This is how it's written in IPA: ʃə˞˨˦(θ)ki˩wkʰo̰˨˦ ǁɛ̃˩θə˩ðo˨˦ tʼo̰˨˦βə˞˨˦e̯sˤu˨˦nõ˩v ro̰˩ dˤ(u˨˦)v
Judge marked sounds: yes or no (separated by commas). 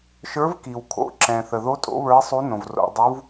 no, yes